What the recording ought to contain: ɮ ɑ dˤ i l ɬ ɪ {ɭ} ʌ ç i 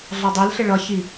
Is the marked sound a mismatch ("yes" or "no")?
no